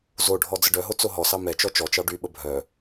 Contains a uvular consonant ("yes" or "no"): no